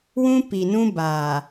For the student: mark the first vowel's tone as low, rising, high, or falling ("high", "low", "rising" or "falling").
high